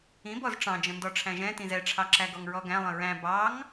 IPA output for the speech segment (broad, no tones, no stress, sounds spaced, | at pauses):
ĩ b ɔ z ʈ͡ʂ ɑ̃ d͡ʒ ə̃ n d ɔ ʈ͡ʂʰ æ̃ ʒ ɛ̃ t ĩ z ɛ ʈ͡ʂʰ ɑ ǁ æ ɡ ɔ ŋ ɹ ɔ ɡ æ̃ lˠ ə̃ ɹ æ̃ b ɑ ŋ